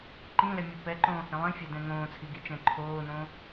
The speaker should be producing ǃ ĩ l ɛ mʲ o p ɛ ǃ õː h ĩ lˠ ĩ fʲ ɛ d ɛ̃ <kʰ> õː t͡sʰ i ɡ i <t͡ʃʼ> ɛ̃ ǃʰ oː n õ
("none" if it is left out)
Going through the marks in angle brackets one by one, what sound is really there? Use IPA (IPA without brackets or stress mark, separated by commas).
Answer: ŋ, t͡ʃ